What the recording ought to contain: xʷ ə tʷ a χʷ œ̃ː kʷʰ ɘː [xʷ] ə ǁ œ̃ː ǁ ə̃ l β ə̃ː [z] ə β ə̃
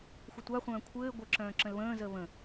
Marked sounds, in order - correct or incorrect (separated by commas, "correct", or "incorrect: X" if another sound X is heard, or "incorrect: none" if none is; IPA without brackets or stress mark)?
incorrect: ɡʷ, correct